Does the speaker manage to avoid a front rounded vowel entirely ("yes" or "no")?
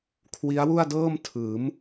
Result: yes